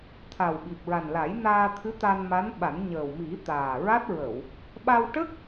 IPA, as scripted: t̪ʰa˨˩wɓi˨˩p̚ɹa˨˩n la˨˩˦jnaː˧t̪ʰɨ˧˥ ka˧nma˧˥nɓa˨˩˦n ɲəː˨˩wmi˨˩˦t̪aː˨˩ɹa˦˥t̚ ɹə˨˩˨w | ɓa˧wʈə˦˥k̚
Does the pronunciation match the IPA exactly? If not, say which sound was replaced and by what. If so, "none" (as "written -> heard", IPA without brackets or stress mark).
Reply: k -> t̪